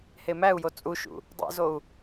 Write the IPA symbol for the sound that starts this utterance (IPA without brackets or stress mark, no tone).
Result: h